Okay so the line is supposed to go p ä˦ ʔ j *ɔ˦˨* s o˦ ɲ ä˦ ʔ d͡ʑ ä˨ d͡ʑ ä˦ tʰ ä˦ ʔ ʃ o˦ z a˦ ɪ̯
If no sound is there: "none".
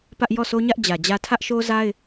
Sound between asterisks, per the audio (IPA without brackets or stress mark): ɔ˦˨